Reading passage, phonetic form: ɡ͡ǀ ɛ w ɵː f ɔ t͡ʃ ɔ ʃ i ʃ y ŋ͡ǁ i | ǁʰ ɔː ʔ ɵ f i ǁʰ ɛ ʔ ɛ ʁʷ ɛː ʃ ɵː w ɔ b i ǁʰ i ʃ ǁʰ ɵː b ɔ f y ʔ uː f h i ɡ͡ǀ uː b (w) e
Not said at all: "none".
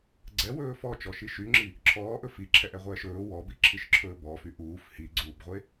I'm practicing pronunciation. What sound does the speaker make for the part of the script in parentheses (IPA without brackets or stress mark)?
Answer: ʁʷ